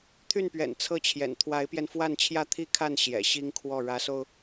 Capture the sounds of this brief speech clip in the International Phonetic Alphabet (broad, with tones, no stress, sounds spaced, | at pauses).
t̪ʰ y˥˩ n p ɥ ɛ̰˨˩ n t͡sʰ ɤ˥˩ t͡ɕʰ j ɛ̰˨˩ n t̪ʰ w a˧˥ ɪ̯ p j ɛ˧ n f w a˥˧ n t͡ɕʰ j ä˥˧ t̪ʰ i˥˧ kʰ a˥˩ n ɕ j ɛ̰˨˩ ɕ i˥ ŋ kʰ w ɔ˥˩ ɻ ä˧˥ s o˧ ʊ̯